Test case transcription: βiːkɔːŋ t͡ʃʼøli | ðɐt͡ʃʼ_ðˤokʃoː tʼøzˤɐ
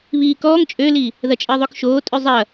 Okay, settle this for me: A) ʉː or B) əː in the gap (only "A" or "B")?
B